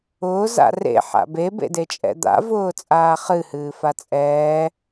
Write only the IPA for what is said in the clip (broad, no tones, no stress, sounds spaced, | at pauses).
ʊː z a̰ r ḛ ħ a̰ b e b ḛ d e t͡ʃʼ ɛ̰ d̪ a̰ v ʊː t͡sʼ aː χ ɨ h ɨː f a t͡sʼ ɛː